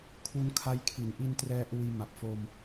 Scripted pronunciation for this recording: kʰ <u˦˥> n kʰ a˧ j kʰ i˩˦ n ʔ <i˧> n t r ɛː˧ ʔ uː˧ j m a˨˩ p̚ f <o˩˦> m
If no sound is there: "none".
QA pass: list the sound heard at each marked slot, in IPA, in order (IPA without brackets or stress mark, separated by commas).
u˧, i˧, o˧